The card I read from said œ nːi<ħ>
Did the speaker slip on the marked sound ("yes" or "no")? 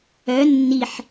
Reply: no